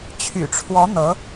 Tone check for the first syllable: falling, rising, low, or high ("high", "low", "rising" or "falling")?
low